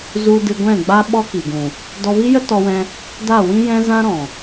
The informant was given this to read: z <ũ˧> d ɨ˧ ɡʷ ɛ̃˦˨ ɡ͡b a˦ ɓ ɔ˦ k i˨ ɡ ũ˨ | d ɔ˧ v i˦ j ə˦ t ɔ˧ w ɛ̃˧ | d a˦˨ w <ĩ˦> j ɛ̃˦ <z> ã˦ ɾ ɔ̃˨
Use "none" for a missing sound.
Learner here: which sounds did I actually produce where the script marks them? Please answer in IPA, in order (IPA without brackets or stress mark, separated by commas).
u˧, ĩ˦, z